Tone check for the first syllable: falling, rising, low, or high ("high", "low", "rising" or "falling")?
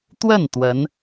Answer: falling